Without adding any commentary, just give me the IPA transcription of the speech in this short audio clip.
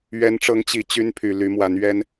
ɥ ɛ˨˦ n ʈ͡ʂ ɤ˨˦ ŋ t͡ɕ i˨˩ t͡ɕ y˦ n pʰ y˨˩ l y˨˦ m w a˨˦ n ɥ ɛ˦ n

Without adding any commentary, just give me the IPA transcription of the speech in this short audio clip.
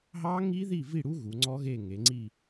ɦ ɑ˦˥ ŋ i˦˥ ð i˦˨ v i˦˨ ɽ u˦˥ ɣ u˩˧ ŋ͡ǀ ɔ˦˥ ɣ e˦˨ ŋ e˩˧ ŋ͡ǀ i˦˨

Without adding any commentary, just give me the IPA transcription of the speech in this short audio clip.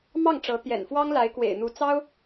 m ɑ˥˩ ŋ ʈ͡ʂ ɤ˧˥ t̪ j ɛ̰˨˩ n f w ɑ˥ ŋ l a˧˥ ɪ̯ k w ḛ˨˩ ɪ̯ n̪ u˧˥ t͡s ɑ˥ ʊ̯

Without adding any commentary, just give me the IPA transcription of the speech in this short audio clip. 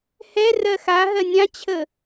h ɛ r ɜ x a ɦ ɜ nʲ ã t͡ɕʰ ə

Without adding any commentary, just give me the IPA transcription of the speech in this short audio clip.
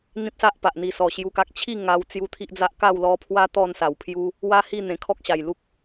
n̪ ĩ˦ p̚ s a˦ ʔ p a˨ ʔ n̪ i˨˩ s ɔ˨˩ ɕ j u˧ k a˦ k̚ t͡ɕʰ i˥˧ ŋ a˧ w t͡s j u˧ t̪ʰ i˦ ʔ d͡z a˦ ʔ k a˥˧ w l ɔ˧ pʰ w a˦ t̪ ɔ˥˧ n s a˨˩ w pʰ j u˦ | w a˦ h i˥˧ n̪ ẽ˨˩ kʰ ɔ˦ k̚ ɕ a˨˩ j l u˦ k̚

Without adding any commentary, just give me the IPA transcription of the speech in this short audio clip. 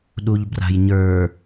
ɗ u ʎ b r a̤ j ɲ ə˞

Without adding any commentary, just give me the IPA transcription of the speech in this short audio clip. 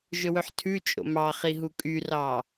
ʒ ɵ w ɵ ħ tʰ ʉ t͡ʃʼ o̰ m ɑ χ i ɦ u kʼ y r ɑ

